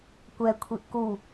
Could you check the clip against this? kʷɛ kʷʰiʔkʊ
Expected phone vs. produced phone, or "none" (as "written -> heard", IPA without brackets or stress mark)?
ʊ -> u